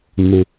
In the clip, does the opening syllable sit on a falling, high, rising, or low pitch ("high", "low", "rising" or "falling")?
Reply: low